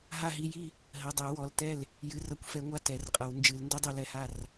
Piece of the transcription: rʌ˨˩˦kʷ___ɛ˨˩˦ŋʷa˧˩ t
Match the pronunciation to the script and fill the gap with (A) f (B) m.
A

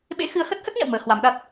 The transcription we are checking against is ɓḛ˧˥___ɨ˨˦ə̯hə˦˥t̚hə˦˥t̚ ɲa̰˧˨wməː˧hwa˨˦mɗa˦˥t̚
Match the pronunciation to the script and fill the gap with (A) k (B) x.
B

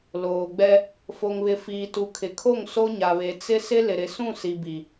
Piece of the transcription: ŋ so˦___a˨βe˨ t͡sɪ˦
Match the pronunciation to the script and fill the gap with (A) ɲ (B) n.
A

